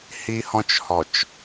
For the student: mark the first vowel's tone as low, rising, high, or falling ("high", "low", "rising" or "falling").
high